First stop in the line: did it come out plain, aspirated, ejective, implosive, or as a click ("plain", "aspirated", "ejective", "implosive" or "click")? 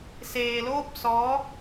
plain